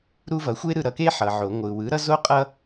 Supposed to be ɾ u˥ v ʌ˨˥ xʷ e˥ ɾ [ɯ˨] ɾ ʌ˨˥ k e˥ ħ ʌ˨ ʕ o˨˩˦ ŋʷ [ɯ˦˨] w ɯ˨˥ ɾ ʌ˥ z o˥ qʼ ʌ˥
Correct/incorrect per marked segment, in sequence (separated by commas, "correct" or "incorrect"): incorrect, incorrect